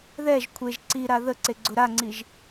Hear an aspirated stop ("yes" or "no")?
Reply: yes